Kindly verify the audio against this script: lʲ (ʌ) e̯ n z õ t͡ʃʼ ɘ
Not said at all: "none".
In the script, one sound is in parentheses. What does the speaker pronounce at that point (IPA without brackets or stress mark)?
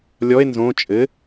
ɔ